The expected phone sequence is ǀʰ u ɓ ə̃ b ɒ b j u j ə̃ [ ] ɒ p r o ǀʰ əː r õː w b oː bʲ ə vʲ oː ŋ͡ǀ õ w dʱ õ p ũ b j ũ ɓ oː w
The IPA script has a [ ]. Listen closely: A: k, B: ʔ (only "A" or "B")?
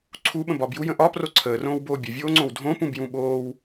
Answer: B